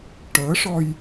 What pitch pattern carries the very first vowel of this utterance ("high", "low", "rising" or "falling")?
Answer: rising